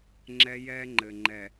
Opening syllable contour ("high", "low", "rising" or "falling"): high